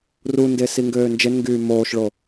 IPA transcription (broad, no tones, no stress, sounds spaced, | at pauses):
r u n d e s i ŋ ɡ øː n d͡ʒ e n ŋ ɡ yː m oː ʃ ɭ o